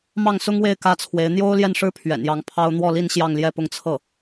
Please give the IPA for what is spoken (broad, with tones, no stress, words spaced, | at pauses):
mɑ˥˩ŋsʊ˥ŋwe˥˩ɪ̯ kä˥t͡sʰwe˧˥ɪ̯ n̪jo˥ʊ̯ljɛ˥˩nʂɻ̩˥ pʰɥɛ̰˨˩njɑ˧˥ŋpʰɑ˥ʊ̯ n̪wɔ˥˧li˥˧n ɕjɑ˥˧ŋljɛ˥˧pʊ˥˧ŋ t͡sʰɤ˥˩